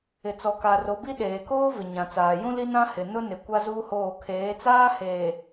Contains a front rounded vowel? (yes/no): no